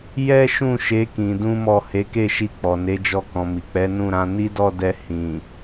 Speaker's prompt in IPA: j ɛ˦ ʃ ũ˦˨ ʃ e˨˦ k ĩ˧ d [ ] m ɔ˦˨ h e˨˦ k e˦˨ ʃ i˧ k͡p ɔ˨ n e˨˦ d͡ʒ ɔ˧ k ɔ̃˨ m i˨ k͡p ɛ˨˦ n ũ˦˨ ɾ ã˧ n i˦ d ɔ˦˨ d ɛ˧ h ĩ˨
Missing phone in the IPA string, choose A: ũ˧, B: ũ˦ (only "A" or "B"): B